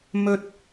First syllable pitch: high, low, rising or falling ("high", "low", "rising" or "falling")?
high